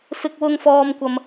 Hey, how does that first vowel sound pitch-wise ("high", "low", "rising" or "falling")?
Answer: high